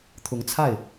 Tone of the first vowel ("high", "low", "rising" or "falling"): rising